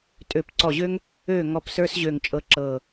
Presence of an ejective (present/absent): present